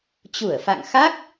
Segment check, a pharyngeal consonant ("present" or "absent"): absent